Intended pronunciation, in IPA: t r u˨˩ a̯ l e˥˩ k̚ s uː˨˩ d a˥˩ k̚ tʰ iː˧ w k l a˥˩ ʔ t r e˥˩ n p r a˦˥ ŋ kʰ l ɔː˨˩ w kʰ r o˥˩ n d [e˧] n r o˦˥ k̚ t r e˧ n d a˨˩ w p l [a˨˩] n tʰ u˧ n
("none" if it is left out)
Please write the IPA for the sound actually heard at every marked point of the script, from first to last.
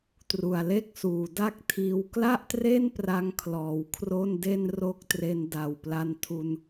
e˥˩, a˧

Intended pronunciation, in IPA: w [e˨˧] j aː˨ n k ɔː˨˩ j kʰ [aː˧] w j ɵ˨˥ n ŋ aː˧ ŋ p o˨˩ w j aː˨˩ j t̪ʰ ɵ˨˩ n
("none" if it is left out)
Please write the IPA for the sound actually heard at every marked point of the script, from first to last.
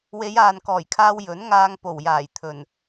e˨˧, aː˧

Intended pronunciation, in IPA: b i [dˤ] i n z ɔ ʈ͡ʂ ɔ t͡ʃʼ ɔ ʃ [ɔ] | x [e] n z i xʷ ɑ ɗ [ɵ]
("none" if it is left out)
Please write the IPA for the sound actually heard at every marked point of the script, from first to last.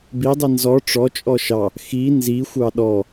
dˤ, ɑ, i, ɔ

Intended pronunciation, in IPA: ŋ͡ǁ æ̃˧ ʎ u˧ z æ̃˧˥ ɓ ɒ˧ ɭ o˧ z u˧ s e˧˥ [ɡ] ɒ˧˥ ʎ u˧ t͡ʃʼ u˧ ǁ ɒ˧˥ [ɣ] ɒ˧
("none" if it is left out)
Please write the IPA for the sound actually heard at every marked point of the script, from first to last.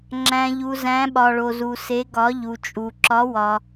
ɡ, w

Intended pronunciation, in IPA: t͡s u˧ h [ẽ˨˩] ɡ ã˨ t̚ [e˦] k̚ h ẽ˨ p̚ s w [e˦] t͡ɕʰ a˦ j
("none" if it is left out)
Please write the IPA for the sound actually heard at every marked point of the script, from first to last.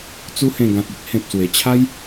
ẽ˨˩, i˦, e˨˩

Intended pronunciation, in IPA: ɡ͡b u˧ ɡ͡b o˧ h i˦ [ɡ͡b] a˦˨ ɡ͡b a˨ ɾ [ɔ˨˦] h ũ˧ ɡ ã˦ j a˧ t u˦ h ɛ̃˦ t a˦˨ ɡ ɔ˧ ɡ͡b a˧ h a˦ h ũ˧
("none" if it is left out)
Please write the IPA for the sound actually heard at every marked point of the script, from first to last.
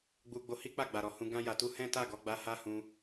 k͡p, ɔ˨

